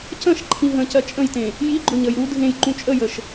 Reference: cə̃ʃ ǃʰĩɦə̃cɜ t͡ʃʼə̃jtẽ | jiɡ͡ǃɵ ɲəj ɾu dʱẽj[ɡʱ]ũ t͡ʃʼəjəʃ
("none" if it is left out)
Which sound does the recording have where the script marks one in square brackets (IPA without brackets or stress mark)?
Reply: ǃ